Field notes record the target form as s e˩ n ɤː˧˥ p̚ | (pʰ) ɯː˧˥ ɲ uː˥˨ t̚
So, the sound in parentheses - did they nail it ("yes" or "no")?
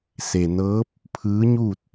yes